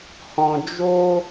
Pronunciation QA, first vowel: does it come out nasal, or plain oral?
nasal